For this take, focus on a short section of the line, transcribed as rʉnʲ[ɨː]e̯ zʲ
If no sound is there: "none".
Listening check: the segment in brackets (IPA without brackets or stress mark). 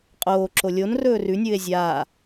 ɨː